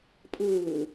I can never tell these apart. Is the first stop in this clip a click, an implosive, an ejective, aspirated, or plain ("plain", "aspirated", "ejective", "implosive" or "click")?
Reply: ejective